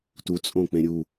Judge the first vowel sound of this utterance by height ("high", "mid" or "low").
high